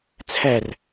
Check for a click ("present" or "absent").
absent